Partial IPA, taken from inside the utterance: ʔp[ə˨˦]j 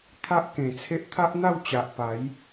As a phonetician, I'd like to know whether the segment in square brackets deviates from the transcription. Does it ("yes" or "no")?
yes